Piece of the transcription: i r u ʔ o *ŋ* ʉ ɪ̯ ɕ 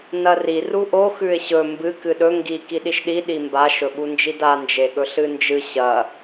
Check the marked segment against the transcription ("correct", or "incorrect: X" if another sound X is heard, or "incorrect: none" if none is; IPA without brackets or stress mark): incorrect: x